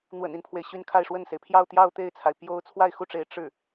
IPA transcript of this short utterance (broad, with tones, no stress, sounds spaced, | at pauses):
n̪ w ə̰˨˩ n i˦ n pʰ w e˩ ɪ̯ ɕ y˥˧ n kʰ a˥˧ ɪ̯ ʂ w ə˥˩ n s e˩ ɪ̯ pʰ j ɑ˥˧ ʊ̯ t̪ j ɑ˥˧ ʊ̯ t̪ e˥˩ ɪ̯ t͡sʰ a˩ ɪ̯ p j o˥ ʊ̯ t͡sʰ w a˥˧ ɪ̯ x u˥˩ ʈ͡ʂ e˧˥ ɪ̯ ʈ͡ʂ ɻ̩˥˩